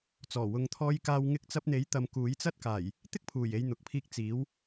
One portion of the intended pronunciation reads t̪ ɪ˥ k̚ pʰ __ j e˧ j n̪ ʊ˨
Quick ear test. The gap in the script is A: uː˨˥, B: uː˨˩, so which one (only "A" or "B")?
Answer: B